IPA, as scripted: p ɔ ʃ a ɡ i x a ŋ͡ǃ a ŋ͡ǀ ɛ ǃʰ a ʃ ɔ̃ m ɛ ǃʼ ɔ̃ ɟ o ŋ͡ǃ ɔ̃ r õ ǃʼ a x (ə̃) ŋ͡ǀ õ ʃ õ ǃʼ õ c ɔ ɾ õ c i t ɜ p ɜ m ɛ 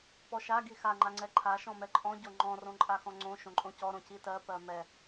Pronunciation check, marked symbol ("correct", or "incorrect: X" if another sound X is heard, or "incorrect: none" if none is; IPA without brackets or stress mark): incorrect: ɔ̃